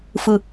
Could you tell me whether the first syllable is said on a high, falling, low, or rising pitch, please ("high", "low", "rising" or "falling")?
high